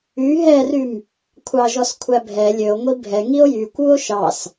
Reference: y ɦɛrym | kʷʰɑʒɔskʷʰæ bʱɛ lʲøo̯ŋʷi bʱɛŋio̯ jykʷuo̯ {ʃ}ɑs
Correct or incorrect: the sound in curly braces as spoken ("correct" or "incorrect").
correct